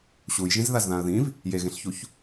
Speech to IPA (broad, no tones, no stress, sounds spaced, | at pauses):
ɕ u j ʒ ĩ z ð a z ð ã ə̯ ð ĩ v | j e ɣ ẽ ɬ ç u ç